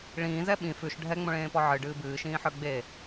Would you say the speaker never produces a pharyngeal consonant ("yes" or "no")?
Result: no